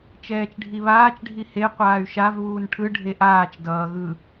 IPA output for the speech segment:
t͡ʃ ɛː t͡ʃ ɖʱ i β aː t͡ʃ ɖʱ i h e qʷ aː y̯ ʃ a v β uː n ʈʰ ɯ ɖʱ e ʔ aː t͡ʃ d ʌː ɣ ɯ

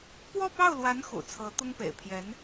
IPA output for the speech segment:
p w ɔ˥˧ p ɑ˥˩ ʊ̯ l w a˧˥ n x ṵ˨˩ t͡sʰ ɤ˧˥ t̪ ʊ˥ ŋ p ḛ˨˩ ɪ̯ pʰ j ɛ˧˥ n

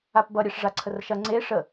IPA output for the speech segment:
a p b ʌ ɾʲ ɛ ʂ ʐ a ǀʰ ə r ʃ ɐ ŋ͡ǀ e ʂ ə

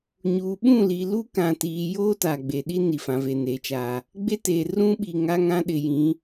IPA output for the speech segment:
ɲ uː˨ ɓ ũ˦˨ l i˨ l u˦ k ã˨ t iː˨ j oː˦ t aː˨ ɡ͡b eː˨ ɗ i˦ n i˨ f ã˨ v e˨ n e˨ t͡ʃ aː˨ | ɡ͡b e˦ t eː˨ r ũ˦ ɓ i˨ ŋ a˦ ŋ ã˦ ɗ ɪ˨ j ĩ˨˦

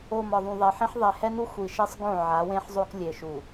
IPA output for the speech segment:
o˨ m ɒ˨ ðˤ ũ˨ ðˤ e˨ ħ ĩ˦ ħ ðˤ e˨ h ɛ˦ n u˦ xʷ i˨ ʃ e˦ sˤ ɡ õ˦˨ ʕ a˨˦ w ẽ˦ ħ zˤ o˦ k lʲ e˨ ʃ u˨

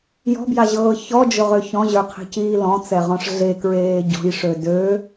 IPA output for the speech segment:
j ɔ̤ b j a ʑ ɤː ç ɔ d͡ʒ ʊ ʁ ø ç ɔ̃ ʑ ə˞ qʰ e̤ c iː l ɔ̃ t͡s ɛ ʁ ɔ̃ ʂ ɮ e k ɹ eː ɟ ɔ̤ j ʂ ø d ø

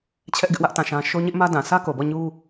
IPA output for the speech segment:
t͡ɕʰ ɛ˦ ʔ ɡ ɪ˦ ʔ w ä˦ ʔ t ã˦˨ ʃ ã˦ ʃ o˦ ɲ ɪ˦ ʔ m ä˦ d ã˨ s ä˦ k o˨ b ɔ˦˨ ɲ u˦

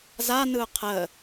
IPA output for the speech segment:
z a n ɯ ʊ̯ qʰ ə

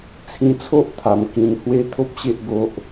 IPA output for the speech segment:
t͡sʰ ĩ˧ t͡sʰ o˦ ʔ t̪ʰ a˨˩ m k ĩ˧ n h w e˦ t̪ʰ o˦ p̚ ɕ e˦ ʔ ɡ o˦ ʔ

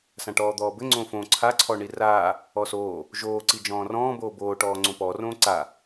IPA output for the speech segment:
s ã ʈ ɔː d̪ ɔː b ɘ ŋ͡ǀ õ f õ ǀʰ a ǀʰ ɔ ɳ i r aː | ɔ s oː | ʒ oː ǀ i d͡ʒ ɔ̃ː r ɔ̃ː b oː b oː ʈ ɔː ŋ͡ǀ õ p ɔ r õː ǀ a

